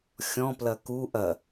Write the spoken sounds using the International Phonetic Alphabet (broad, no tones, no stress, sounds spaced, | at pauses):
xʲ ɔ̃ p l ɐ k u ʔ ɐ